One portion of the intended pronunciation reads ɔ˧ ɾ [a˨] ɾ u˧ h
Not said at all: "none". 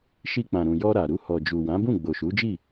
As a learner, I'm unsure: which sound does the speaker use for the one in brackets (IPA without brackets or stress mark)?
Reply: a˨